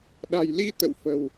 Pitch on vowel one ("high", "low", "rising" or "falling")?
low